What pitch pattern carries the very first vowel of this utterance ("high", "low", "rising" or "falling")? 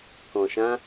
low